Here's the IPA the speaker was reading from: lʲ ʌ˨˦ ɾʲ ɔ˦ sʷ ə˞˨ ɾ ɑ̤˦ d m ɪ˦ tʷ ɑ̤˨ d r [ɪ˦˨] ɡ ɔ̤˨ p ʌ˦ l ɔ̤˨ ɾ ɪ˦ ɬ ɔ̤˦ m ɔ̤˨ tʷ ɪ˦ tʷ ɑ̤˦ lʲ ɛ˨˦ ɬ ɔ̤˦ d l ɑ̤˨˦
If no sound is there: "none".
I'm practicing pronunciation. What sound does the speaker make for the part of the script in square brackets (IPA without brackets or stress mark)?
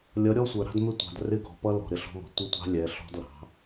ɪ˦˨